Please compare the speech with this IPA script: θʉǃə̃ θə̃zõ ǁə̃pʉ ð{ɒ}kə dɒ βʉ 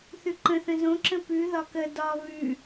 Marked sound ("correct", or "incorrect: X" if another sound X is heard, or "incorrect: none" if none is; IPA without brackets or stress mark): correct